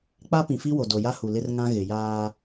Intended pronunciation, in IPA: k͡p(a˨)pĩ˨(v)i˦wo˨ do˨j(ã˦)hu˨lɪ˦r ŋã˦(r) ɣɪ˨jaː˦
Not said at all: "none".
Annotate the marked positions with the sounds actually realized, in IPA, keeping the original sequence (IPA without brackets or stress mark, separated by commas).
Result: a˦, f, a˦, none